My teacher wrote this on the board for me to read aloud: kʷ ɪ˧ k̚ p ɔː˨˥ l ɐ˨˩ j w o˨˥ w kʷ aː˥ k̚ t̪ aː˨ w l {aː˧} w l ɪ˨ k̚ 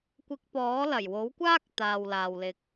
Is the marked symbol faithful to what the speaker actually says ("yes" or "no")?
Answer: no